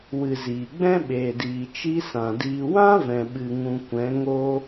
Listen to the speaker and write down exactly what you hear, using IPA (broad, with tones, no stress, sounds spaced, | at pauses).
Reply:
w ɨ˨ z iː˨ ɡ͡b ɛ̃˦ ɓ eː˨ d iː˨ t͡ʃ i˦ s ã˨ d iː˧ w ã˦ v ɛ̃˨ ɓ ɨ˨ ŋ ũ˧ kʷ ɛ̃˨˦ ŋ o˦